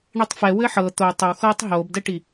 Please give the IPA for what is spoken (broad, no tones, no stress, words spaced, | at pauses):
ɳitˤfɛ wɘħɤ t̪o tˤəwxɤːtˤ ɦoːbdɛʈi